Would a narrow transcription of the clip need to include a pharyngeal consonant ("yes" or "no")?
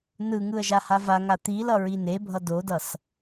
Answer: no